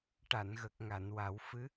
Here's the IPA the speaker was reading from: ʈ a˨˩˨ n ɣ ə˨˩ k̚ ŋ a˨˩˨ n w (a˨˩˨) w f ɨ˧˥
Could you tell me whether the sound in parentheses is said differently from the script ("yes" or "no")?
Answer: yes